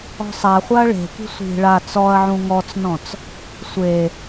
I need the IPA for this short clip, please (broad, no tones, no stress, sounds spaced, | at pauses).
ɔ̤ sˤ a χʷ a ɐ̯ ɭ e̤ k i̤ sʷ i̤ ɭ a t͡s ɔ ɐ̯ ʕ ũ ŋ ɔ t͡s n ɔ̃ t͡s | sʷ e